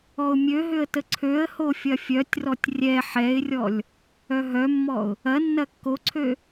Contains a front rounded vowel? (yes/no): yes